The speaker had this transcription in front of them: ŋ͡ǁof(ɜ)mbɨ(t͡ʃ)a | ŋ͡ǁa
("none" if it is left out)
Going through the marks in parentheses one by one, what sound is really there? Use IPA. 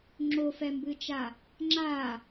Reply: ɛ, t͡ʃ

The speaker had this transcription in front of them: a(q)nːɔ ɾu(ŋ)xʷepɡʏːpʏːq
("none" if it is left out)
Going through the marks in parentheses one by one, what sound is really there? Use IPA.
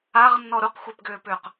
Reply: ʁ, q

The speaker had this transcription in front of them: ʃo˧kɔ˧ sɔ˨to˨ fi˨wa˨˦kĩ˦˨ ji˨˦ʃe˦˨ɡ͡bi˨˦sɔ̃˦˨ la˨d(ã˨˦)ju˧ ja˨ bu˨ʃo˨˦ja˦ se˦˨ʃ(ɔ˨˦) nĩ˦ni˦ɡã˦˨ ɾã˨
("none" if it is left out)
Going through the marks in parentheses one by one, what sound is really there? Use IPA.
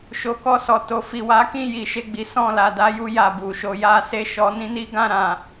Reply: a˨˦, ɔ˨˦

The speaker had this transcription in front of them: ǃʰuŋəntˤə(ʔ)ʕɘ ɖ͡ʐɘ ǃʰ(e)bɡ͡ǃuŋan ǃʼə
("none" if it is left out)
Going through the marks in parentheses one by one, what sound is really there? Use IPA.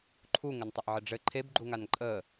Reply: ʔ, e

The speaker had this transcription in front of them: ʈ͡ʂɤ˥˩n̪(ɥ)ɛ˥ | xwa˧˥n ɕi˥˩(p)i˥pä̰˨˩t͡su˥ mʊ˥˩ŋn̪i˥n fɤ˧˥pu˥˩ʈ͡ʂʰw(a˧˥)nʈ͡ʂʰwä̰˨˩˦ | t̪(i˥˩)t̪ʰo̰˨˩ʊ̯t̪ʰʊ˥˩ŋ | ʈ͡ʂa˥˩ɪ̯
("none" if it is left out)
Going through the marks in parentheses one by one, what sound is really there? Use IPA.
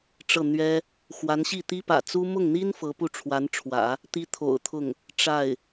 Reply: ɥ, t̪, a˧˥, i˥

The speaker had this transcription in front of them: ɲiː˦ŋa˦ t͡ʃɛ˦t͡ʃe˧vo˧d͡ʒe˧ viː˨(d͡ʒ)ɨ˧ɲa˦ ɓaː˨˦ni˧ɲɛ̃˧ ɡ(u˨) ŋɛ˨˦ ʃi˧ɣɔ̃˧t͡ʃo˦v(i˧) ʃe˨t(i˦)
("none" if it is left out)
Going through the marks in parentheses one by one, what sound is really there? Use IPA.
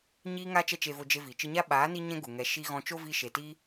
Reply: t͡ʃ, u˨, i˧, i˦

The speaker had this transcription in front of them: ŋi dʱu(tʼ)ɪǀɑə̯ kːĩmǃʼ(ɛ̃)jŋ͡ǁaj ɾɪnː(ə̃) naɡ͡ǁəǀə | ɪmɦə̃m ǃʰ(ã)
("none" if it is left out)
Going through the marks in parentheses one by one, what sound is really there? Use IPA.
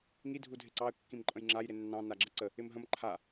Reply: dʱ, ə̃, ɑ̃, a

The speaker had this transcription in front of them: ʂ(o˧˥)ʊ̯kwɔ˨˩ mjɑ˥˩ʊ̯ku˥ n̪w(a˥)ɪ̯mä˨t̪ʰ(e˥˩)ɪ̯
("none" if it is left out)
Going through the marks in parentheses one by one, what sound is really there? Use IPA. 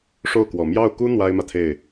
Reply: o˥˩, a˥, e˥˩

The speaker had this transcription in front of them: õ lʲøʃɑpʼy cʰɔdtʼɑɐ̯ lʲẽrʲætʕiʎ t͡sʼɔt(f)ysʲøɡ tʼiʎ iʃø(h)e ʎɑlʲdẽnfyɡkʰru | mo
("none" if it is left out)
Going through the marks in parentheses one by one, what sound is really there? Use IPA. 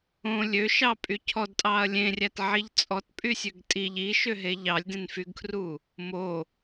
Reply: pʼ, ɦ

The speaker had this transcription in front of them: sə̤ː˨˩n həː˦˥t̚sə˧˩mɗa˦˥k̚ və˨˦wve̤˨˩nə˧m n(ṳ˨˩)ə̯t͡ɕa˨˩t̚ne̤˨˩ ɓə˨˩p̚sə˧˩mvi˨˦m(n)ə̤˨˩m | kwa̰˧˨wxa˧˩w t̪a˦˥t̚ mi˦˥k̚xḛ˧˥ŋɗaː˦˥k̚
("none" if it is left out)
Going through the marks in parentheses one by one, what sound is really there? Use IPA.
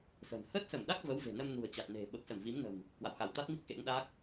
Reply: ṳ˨˩, n

